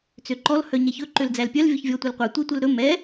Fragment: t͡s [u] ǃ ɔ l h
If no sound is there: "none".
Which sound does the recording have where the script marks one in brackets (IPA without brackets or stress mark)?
ø